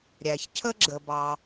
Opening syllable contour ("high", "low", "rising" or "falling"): low